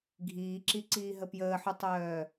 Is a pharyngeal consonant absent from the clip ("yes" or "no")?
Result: no